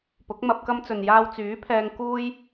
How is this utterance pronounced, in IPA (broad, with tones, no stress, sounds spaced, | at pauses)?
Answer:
p ʊ˨˥ k̚ m ɐ˧ p̚ k ɐ˧ m t͡s ɵ˨ n j aː˧ w t͡s yː˨˥ pʰ ɛː˧ ŋ k uː˧ j